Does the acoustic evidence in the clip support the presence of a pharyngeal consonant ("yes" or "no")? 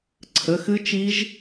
no